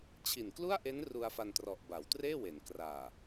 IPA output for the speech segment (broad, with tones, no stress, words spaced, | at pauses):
t͡ɕʰi˨˩nklu˥˩a̯ʔe˦˥n ru˧a̯fa˧ntrɔ˨˩ʔ ba˩˦wtreː˥˩we˩˦n kraː˨˩